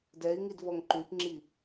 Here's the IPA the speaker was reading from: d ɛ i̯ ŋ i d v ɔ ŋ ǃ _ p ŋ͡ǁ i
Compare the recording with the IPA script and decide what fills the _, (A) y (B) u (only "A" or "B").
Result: A